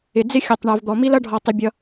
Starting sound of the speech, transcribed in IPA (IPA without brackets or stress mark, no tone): ɪ